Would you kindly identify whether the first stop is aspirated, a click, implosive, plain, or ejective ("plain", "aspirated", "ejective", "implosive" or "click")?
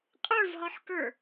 ejective